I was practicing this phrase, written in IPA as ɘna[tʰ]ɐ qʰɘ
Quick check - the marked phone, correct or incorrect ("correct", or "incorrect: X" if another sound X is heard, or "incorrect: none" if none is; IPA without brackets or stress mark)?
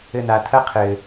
correct